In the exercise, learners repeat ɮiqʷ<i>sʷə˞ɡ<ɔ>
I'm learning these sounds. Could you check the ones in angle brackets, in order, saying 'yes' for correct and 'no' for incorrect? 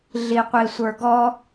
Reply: yes, yes

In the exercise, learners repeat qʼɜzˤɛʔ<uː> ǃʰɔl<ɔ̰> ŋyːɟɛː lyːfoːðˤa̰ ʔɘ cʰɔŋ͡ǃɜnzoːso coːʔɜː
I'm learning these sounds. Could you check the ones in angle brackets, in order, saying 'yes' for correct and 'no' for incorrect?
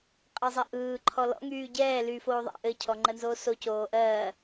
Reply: no, yes

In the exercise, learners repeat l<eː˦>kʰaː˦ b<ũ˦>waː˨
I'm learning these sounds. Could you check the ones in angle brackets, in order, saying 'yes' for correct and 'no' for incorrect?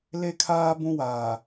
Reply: no, yes

